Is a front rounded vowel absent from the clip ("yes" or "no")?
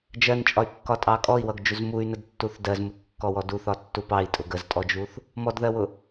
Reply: no